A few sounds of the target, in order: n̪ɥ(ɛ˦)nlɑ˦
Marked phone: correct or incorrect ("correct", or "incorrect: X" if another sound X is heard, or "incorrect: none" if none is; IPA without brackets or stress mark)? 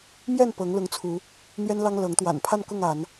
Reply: correct